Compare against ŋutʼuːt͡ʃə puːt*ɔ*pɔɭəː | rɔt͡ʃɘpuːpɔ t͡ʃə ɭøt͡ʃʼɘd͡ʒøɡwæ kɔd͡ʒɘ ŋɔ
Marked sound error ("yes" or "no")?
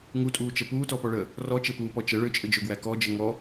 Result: no